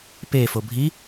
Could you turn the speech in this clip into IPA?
p e f o bʱ i

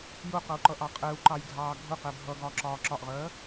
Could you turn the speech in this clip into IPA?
j ʊ q ʌ u̯ ǃ ʌ ʔ ɑ qʼ ɛ u̯ ǃ ɑ j ɡʱ ɑː ɡʱ ʊ q ɛ bʱ ʌ ɡ ɒː ǁ ɒː ǁ ɒ ʔ ʁ ɜː

